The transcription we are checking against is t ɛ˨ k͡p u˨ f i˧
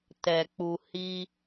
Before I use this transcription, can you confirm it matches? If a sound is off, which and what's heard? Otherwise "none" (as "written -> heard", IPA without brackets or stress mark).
f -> h